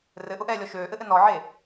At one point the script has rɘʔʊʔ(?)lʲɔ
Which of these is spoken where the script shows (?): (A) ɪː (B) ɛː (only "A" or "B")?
B